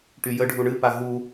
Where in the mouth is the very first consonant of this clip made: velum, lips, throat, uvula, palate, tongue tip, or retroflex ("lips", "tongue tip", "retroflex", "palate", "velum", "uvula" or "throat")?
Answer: retroflex